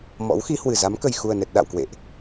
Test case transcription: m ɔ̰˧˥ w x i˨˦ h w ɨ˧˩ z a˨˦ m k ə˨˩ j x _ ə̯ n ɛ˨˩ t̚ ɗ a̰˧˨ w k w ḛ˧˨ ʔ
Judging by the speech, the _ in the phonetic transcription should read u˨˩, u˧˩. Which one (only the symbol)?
u˨˩